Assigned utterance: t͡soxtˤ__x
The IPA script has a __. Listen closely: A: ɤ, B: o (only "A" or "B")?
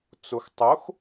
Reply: B